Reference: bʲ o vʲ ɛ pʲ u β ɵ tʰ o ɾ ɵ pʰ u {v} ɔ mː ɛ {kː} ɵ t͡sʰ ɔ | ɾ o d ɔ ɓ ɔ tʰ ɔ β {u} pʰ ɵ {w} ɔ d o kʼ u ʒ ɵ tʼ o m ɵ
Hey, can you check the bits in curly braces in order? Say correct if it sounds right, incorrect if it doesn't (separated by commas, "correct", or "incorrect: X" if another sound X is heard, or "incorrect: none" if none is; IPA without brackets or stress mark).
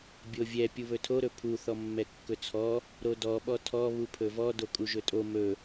incorrect: θ, correct, correct, incorrect: v